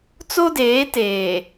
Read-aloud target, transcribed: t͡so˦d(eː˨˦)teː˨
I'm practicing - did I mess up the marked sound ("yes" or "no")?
no